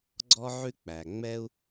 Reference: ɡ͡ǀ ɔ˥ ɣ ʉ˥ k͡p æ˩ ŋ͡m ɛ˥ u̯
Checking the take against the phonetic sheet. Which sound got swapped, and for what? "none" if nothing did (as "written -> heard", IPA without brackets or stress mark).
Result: ɣ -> ʕ